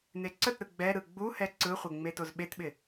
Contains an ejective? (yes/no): no